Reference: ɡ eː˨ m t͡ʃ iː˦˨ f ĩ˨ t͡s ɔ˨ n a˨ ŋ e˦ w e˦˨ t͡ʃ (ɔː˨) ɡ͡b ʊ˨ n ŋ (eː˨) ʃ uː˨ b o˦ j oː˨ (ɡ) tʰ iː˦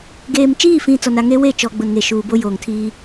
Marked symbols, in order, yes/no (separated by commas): no, no, no